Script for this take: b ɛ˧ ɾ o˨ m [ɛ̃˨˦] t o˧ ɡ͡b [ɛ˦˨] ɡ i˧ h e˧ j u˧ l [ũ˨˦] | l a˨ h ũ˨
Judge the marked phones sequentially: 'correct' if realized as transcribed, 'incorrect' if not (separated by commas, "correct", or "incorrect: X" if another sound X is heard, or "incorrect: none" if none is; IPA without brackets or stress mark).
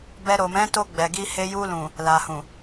correct, incorrect: ɛ˨, incorrect: ũ˨